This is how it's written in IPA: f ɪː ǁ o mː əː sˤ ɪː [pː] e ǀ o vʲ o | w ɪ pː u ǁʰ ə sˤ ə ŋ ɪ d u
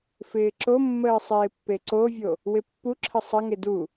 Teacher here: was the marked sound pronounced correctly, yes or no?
yes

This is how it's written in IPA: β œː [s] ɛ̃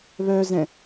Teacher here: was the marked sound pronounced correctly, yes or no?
no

